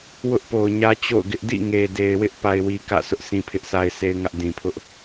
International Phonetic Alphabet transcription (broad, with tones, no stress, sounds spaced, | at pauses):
w ʊ˦ ʔ p o˨ ʊ̯ ɲ ä˦ t͡ɕ o̰˦˨ ʊ̯ ɡ ɪ˦ ʔ d ḭ˦˨ ŋ e˨ d e˨ ɪ̯ w ɪ˦ ʔ p a˦ ɪ̯ w i˦ k ä̰˦˨ sʰ ʊ˦ ʔ sʰ ĩ˦ pʰ ɪ˦ ʔ sʰ a˦ ɪ̯ s e˦ ɪ̯ ŋ ä˦ ʔ d ĩ˨ pʰ ʊ˦ ʔ